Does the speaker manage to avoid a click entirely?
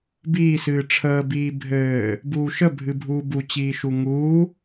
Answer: yes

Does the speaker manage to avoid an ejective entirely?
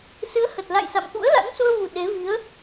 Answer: yes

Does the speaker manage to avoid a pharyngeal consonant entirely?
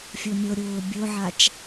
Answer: no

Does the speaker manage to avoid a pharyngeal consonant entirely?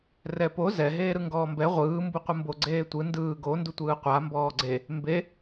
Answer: yes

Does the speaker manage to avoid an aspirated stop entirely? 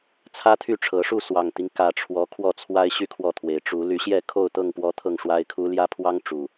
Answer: no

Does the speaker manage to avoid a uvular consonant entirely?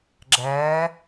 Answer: yes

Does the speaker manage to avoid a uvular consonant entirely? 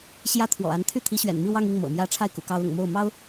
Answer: yes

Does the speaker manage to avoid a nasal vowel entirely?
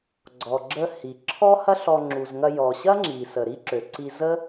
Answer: yes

